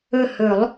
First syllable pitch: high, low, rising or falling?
falling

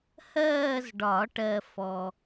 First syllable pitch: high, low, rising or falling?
falling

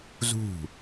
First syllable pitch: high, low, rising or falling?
falling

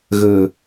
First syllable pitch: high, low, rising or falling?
low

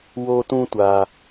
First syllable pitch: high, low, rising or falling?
high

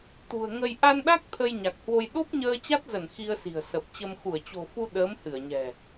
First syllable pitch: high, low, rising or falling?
low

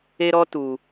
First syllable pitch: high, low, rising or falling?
high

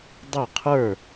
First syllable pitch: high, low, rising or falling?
falling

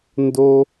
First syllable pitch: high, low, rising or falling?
high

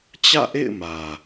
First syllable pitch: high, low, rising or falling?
falling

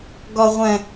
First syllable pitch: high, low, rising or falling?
low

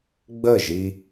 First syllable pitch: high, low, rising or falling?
falling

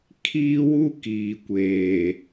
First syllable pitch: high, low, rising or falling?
high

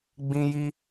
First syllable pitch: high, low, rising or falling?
high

